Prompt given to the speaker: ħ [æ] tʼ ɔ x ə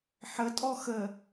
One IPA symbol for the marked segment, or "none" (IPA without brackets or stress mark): ə